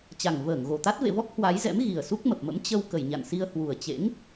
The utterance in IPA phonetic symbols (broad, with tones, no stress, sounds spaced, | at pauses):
t͡ɕ a˨˩ ŋ v əː˧˩ ŋ ɣ o˨˩ t̪ a˦˥ t̚ v ḛ˧˨ v ɔ˦˥ k̚ h w a˨˦ j z ɛ̰˧˥ m ɣ i˨˩ ə̯ s u˦˥ k̚ m ə˨˩ p̚ m ə̰˧˥ m t͡ɕ ə˧ w k ə˨˩ j ɲ a̰˧˨ n s i˧ ə̯ h w u˨˩ ə̯ t͡ɕ ḛ˧˥ ŋ